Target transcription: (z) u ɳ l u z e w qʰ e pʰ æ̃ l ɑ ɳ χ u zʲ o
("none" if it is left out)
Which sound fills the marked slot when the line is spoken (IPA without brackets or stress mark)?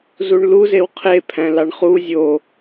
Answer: z